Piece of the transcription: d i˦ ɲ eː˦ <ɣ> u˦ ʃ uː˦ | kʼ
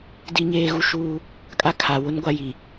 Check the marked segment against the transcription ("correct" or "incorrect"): correct